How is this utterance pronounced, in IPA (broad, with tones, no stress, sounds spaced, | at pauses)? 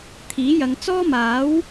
t̪ʰ iː˨˥ j ɐ˨˧ ŋ t͡s ɔː˥ m aː˨˥ w